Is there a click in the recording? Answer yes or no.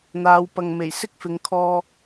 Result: no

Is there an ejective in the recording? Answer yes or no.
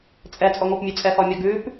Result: yes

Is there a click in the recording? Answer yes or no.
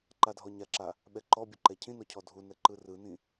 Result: yes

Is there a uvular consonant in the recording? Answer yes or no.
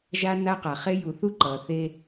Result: yes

